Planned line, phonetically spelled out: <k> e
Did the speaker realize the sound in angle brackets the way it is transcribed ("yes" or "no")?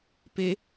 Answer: no